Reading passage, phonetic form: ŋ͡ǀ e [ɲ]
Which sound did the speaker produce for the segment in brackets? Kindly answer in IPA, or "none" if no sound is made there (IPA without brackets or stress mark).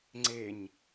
ɲ